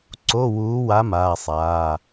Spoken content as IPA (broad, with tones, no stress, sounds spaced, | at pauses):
ǀ o˧˥˧ w uː˧˥ w a˧˥ m aː˧˥˧ sˤ aː˧˥˧